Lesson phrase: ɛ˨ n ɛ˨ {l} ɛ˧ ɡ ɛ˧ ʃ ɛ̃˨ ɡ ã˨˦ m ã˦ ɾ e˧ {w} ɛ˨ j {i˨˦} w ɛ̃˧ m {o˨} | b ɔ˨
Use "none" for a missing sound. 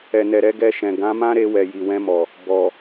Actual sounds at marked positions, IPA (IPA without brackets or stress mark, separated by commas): ɾ, w, i˨, ɔ˨